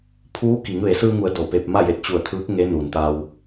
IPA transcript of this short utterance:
pʰuː˧˥ki˩˧ŋ ʋe˩˧sɯː˧ŋu˩˧ə̯ do˧˩pe˧p̚ ma˥˨je˧˩t̚t͡ɕu˧˩ə̯t̪ʰɯː˧˥k̚ ŋe˧˥nu˩nt̪a˧w

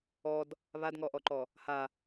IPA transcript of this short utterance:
ɔd | βadŋɔʔɔǃɔ | ha

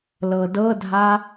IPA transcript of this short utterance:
lɤdɤdʱa

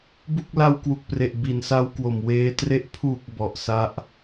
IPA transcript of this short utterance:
bu˥˩k̚ la˧wkwu˨˩k̚pre˨˩ʔ bi˨˩nsa˦˥wkwo˨˩m weː˦˥tre˥˩ʔ pʰu˨˩k̚ bɔ˨˩ʔsa˦˥ʔ

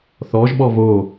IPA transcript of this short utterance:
θɔʒɓɔ vo

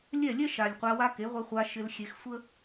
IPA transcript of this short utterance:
lʲɛ˦˨lʲɛ˦ ʃa˨lʲqʷa˧ wa˧ ke˨˦ʁʷe˧χʷa˧ ʃɪ˧lxʲe˧xsʷə˦

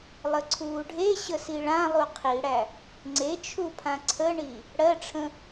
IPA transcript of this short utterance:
lˠəǀʰuːɖʱe ɕəsiɭã lˠuqʰiɽæ | ŋ͡ǀet͡ʃʰupʰã ǀʰəɳi | ɽɜʈ͡ʂʰə̃

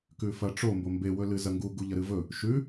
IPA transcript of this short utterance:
kʉfɐʈ͡ʂo mbombe wɵlɨzɐŋɡu ɡuʎɐɾɨvɵ | ʃʉ

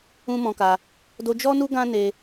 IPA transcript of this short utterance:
ũ˦mɔ̃˧ka˧ | do˧d͡ʒɔ˦nu˦ ɡã˦ne˧

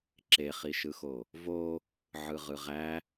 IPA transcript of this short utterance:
ǁeχiʃɯxo | vo | ʕɯʁɯʁæ

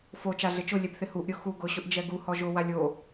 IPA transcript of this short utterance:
fo t͡ʃaɮɪt͡ʃʊ lʲɛbθɪhuʔ ɾʲʊxu ɡʊ ɕʊʔd͡ʒɛɡu hɔʒʊ walʲo

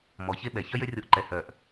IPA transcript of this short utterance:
mɔ˨çe˦ɓɛ˨ çœ˦jø˦rʲo˧ʔǃɛ˨ hœ˨ʔ

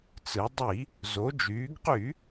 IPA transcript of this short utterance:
t͡sɯ˩˧dˤi˧˩˧ | zo˩˧d͡ʒyː˩˧ɡqy˧˩˧

